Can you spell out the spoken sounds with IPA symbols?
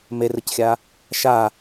m e r ɯ c xʲ a | ʃ a

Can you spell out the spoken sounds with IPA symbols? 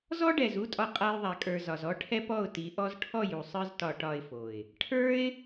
z ɔ˦ ɖ ɛ˨ z u˦ tʼ ɒ˧ qʼ a˧ j ðˤ a˨ kʼ ə˞˨ z ɒ˨ z ɔ˦ ʈʰ ɛ˦ p ɔ˦˨ ʊ̯ t i˨˦ ʔ ɔ˦ z ʈʰ ɔ˦˨ j u˨ sˤ ə˞˦ z t ɒ˧ ʈ ɒ˧ ɪ̯ f o˨ ɪ̯ | ʈʰ ə˞˦ ɪ̯

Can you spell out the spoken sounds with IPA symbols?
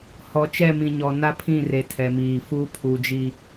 h ɔ˨ t͡ʃ ɛ˦˨ m ĩ˨ ɲ ɔ˨ n a˦ pʰ ĩ˦˨ r e˨ tʰ ɛ˨ m iː˨ f uː˦ pʰ u˨ d͡ʒ i˨

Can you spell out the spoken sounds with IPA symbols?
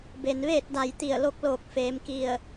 b e˩ n ʋ eː˥˨ t̚ d a˧˩ j t̪ i˧˩ ə̯ l o˧˥ k̚ l oː˧˩ k̚ f eː˩˧ m k i˧˩ ə̯

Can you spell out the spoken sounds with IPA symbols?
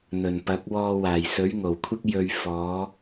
n̪ ɵ˨˩ n p ɐ˨˥ k̚ w ɔː˧ w aː˨˩ j s ɵ˨˥ ɥ ŋ o˨˩ w kʷʰ ɪ˥ k̚ j ɵ˧ ɥ f ɔː˨˥

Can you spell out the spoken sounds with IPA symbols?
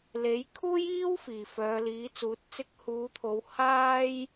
l e˨˥ j kʰ uː˥ j iː˥ w f iː˨˩ f œː˨˧ l iː˨˥ t͡s uː˨˥ t̚ t͡s ɪ˧ k̚ h uː˨˧ t̪ʰ o˨˧ w h aː˥ j

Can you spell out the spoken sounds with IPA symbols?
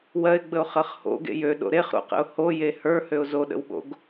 w ɜ ɪ̯ ɡ͡b ə ʊ̯ χ ɜ χ h o̰ ɡ ḛ j ø ɗ o̰ ɾ e χ ɾ o̰ q ə̰ ʊ̯ h o j e h ə˞ h ø ʊ̯ z o ɗ ə̰ w ɓ o̰ ɡ

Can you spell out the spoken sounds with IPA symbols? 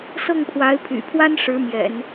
s ɤ˥˩ ŋ pʰ w a˧˥ ɪ̯ pʰ y̰˨˩ pʰ w a˥ n ʂ ɻ̩˧˥ m j ɛ̰˨˩˦ n

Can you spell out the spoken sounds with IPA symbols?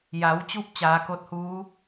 j a˩˧ w t͡ɕ u˧ p̚ t͡ɕ aː˩˧ k o˧˥ t̚ h uː˧˥

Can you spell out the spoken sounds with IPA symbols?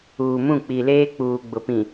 uː˨ m ũ˦˨ k͡p i˨ l eː˦ k͡p uː˨ ɡ͡b ʊ˨ p ĩ˨

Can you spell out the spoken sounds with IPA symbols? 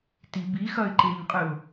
t i b i x ɐ ɪ̯ ǃ e ɲ qʼ ɨ ʊ̯

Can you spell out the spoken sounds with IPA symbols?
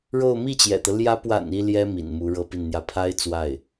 ɻ o˥˧ ʊ̯ m i˥˩ t͡ɕ j ɛ̰˨˩ t̪ ɤ˦ l j ä˧˥ p w a̰˨˩ n i˥ l j ɛ˥ m ḭ˨˩ n m u˧˥ ɻ ɤ˥ p i˥˩ n n̪ j ä˥ pʰ a˥ ɪ̯ t͡s w a˥˩ ɪ̯

